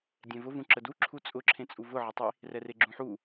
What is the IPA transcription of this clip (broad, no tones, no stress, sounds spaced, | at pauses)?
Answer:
dʲ ɛ̃ v ʊ v ũ ǁ ə d u ǁʰ u t͡sʼ ʊ ǁʰ ẽ t͡sʼ u v ʊ ʕ ə tˤ i | r ɛ r e ɡ͡ǁ ũ ħ u